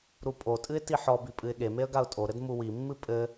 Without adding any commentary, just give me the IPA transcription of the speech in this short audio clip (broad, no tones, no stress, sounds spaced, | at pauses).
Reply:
ɾ u pʼ o tʼ ɨ ɪ̯ t i ħ ɔ b i pʼ ɨ ɪ̯ ɠ e m e ə̯ ɡ a ʊ̯ tʼ o ɾ ɘ d m u w i mː ɨ pʼ ɘ